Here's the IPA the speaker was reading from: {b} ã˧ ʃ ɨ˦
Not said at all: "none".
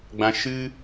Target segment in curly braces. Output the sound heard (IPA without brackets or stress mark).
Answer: ɡ͡b